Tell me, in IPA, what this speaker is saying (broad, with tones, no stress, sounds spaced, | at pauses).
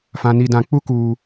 f ã˨ n i˨ d ã˨ k͡p u˦ k uː˨